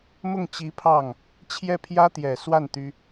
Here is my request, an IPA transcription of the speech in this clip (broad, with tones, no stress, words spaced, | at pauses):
mʊ˥˩ŋt͡ɕi˧˥ pʰɑ˥˩ŋ | t͡ɕʰjɛ˥˩pʰjä˥t̪jɛ˨˩swa˥˩n t̪y˥